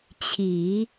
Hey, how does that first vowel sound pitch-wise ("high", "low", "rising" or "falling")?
low